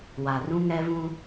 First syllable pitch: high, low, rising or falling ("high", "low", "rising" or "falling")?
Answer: low